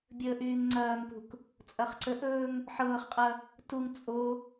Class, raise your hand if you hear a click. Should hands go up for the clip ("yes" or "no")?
yes